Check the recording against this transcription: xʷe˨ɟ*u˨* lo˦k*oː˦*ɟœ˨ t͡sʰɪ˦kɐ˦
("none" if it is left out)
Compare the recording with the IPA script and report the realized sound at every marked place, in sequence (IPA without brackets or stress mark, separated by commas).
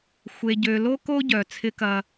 ø˨, o˦